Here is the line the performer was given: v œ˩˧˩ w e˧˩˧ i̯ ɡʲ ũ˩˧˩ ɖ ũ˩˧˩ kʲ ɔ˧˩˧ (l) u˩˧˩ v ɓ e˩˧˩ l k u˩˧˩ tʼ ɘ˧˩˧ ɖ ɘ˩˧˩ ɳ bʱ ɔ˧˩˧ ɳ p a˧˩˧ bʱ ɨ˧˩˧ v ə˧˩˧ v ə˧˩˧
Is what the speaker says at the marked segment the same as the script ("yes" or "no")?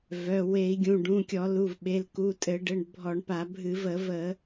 yes